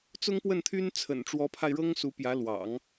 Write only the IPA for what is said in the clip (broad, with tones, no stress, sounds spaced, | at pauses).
t͡s ʊ˥ ŋ p w ə˥˩ n t̪ʰ y˥ n t͡sʰ ə̰˨˩ n ʈ͡ʂ w ɔ˧˥ pʰ a˧ ɪ̯ ɻ ɤ˥ ŋ s u˧˥ p j ä˧˥ l w ɑ̰˨˩˦ ŋ